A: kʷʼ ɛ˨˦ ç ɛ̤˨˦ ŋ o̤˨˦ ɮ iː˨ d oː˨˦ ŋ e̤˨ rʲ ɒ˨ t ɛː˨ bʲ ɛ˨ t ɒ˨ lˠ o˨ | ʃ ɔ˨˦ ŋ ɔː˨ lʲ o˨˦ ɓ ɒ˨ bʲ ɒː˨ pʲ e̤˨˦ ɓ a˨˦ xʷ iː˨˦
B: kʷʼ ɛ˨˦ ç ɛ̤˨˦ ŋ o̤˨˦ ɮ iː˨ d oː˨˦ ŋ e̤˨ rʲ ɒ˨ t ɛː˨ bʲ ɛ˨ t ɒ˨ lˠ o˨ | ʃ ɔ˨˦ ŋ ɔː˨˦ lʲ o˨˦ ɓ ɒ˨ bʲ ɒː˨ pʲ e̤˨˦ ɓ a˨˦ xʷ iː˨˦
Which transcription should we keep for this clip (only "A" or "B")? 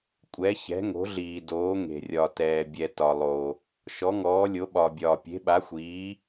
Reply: B